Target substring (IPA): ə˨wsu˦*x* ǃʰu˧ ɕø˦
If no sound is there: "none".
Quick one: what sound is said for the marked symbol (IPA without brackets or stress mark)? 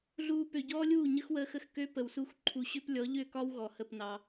x